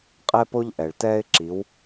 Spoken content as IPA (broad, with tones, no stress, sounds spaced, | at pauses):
qʼ ɛ˧ p o˧ ʎ ʔ ɛ˩ ɭ t ɛː˧ ɪ̯ ǁ i˩˧ w